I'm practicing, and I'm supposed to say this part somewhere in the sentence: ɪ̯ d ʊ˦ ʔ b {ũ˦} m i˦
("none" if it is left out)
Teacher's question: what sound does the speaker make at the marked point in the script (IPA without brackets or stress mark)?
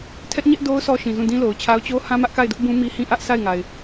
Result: ũ˦